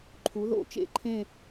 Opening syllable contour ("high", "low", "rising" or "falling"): rising